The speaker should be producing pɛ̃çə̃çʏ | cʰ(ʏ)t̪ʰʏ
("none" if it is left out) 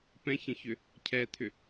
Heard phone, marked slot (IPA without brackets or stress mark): ɛ